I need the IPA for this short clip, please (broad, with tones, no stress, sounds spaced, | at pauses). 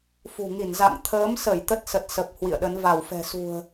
f ṳ˨˩ ŋ i˧˩ n z a̰˧˨ ŋ t̪ʰ əː˨˦ m s ə˧˩ j t̪ ə˦˥ t̚ s ə˨˩ t̚ s ə˨˩ p̚ h w ḭ˧˨ ə̯ ɗ ə˨˦ n v a˧˩ w f ɛ̤˨˩ s ṳ˨˩ ə̯